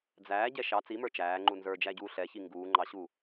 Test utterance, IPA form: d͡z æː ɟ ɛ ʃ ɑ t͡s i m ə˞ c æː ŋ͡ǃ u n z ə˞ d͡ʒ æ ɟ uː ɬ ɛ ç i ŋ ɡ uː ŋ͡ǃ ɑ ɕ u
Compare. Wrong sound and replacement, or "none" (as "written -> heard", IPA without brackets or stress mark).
c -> t͡ʃ